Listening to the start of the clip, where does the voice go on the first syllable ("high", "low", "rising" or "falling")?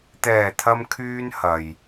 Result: low